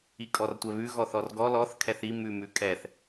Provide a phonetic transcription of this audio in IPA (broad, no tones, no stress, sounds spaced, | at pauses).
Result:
i kʼ ɔ r tʷ ɛ β ʉ ɣ ɔ θ ɔ r ɡ ɔ l ɔ θ kʰ ɛ θ i m ʉ m ʉ kʼ ɛ θ